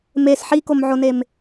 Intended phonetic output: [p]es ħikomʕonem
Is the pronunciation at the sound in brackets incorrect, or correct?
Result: incorrect